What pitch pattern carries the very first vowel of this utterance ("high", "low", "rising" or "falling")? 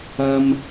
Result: low